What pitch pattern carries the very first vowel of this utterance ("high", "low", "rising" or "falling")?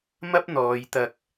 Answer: high